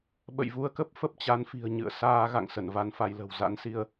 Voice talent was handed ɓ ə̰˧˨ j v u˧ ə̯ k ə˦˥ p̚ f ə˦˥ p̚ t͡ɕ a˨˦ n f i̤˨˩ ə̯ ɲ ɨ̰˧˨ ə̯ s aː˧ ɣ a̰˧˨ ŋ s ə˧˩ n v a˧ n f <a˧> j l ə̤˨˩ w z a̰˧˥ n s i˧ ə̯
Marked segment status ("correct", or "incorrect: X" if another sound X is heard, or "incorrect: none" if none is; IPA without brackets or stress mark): correct